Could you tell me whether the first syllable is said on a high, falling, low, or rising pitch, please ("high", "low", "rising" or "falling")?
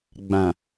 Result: low